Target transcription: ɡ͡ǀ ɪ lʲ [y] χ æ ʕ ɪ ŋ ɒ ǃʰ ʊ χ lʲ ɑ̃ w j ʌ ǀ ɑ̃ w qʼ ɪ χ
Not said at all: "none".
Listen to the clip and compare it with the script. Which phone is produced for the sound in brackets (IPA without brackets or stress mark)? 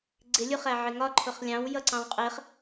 u